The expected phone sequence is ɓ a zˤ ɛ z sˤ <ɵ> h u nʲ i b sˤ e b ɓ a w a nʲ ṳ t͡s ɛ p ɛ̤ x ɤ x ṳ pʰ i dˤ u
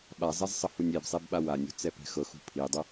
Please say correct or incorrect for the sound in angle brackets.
incorrect